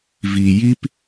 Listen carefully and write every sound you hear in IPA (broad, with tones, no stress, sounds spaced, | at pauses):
v i˨ j i˦ p